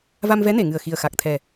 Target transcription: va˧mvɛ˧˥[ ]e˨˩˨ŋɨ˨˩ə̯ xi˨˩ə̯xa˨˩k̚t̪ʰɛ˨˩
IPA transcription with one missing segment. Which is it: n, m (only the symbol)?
n